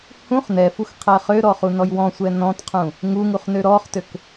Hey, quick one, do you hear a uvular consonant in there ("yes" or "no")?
yes